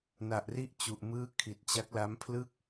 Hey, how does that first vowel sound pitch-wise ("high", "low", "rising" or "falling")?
low